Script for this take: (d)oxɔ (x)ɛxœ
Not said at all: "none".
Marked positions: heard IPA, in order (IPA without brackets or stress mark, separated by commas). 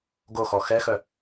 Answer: ɡ, x